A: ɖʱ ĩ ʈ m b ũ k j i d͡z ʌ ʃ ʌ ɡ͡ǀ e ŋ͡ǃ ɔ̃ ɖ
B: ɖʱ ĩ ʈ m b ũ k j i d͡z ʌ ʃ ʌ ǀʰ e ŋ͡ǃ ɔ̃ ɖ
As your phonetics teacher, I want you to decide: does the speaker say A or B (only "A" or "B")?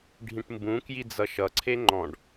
B